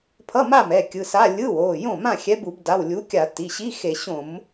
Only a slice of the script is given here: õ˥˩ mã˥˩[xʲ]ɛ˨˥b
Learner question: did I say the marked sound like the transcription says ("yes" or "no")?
yes